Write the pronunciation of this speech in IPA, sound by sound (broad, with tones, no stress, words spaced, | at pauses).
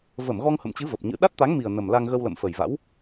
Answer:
və˧˩m ɣɔ˧ŋhə̰˧˨mt͡ɕɨ˨˦ və˨˩p̚ɲɨ̰˧˥ ɗa˦˥t̚t̪a˨˦ŋmi˨˩ə̯ nə˨˩m la˧ŋɣə˧wlə̰˧˨m fə˨˩jva̰˧˥w